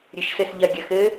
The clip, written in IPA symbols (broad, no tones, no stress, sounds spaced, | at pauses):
ɾʲ ɨ ʃ s ɘ s ʎ ɐ ɡʲ ɐ x ɘ